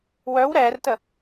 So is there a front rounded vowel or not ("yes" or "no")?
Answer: yes